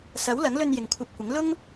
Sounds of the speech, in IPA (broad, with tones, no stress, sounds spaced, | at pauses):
s ɐ˨˥ w l ɐ˨˥ ŋ l ɵ˧ n j ɪ˨ ŋ kʷʰ ɐ˧ p̚ kʷ ɪ˨˥ ŋ l ʊ˥ ŋ